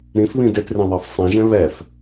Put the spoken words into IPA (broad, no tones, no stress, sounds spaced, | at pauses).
ɾ ĩ f β ĩ d e t r ĩ ðˤ ɑ f sˤ ĩ ʒ ɛ̃ β ɛ f